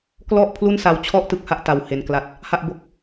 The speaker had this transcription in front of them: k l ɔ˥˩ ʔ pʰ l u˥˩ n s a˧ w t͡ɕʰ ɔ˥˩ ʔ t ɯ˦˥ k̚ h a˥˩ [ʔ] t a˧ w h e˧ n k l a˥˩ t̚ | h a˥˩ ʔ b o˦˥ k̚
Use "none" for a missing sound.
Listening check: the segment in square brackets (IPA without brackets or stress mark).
ʔ